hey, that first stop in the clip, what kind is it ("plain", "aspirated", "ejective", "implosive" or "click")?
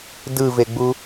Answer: plain